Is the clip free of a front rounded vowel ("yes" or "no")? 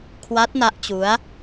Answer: yes